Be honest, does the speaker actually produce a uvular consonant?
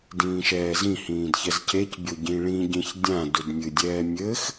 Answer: no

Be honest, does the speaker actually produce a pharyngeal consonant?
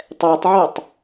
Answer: yes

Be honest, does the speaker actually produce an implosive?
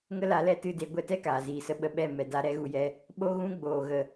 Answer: yes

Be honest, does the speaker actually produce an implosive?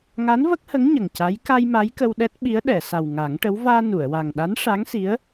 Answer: yes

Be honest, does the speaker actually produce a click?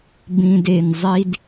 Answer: no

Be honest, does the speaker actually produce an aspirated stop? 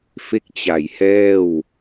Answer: no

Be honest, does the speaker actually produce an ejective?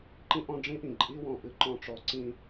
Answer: yes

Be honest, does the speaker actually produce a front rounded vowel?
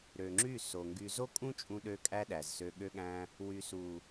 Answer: yes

